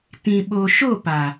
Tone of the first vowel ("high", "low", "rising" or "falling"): low